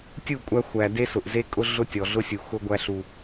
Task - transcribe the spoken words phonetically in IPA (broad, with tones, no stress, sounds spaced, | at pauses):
tʲ u˦˨ kʷʼ æ˦ xʷ æ˨ d e˦ s ʊ˨ ʔ z e˦ kʼ ʊ˦ ɮ ʊ˦ tʲ ɔ˨ ɮ ʊ˦ sʲ u˨ x ʊ˦ ɡʷ æ˦ ɬ u˦